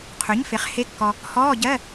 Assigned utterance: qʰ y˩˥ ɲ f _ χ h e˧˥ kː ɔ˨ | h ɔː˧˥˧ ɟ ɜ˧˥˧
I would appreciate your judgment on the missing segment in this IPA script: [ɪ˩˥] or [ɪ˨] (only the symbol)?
ɪ˩˥